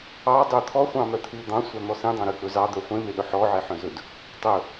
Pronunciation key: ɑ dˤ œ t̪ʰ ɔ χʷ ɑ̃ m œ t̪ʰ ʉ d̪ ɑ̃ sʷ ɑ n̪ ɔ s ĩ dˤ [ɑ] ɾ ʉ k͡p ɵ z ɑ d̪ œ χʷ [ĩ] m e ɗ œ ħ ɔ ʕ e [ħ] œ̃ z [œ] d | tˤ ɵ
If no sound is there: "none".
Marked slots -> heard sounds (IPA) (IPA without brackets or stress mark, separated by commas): ɑ̃, ẽ, ħ, ɵ